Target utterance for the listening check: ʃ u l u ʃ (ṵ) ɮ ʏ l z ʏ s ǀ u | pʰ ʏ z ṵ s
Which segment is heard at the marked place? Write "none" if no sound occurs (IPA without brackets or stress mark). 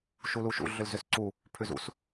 ṵ